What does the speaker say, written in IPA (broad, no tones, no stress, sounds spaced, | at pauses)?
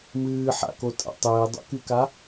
m ɨː ħ a̰ k o tʼ a̰ tˤ ɘː dˤ o̰ k y k a